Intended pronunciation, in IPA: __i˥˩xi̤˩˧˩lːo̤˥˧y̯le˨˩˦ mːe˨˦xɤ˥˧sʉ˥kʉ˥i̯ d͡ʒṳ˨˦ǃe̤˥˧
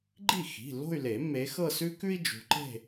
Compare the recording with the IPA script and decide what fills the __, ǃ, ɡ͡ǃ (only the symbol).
ɡ͡ǃ